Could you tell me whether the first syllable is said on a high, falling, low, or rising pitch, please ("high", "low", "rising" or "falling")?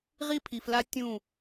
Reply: high